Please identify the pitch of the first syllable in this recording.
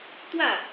falling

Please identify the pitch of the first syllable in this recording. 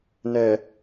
low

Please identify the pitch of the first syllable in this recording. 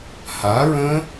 rising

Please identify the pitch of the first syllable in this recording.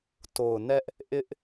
low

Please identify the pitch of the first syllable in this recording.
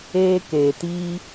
high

